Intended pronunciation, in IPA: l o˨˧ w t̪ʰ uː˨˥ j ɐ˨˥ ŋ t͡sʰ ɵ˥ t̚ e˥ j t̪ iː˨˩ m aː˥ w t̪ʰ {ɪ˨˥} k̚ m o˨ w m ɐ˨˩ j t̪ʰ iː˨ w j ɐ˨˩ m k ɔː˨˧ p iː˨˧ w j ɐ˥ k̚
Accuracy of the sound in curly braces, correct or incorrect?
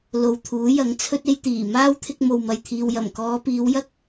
incorrect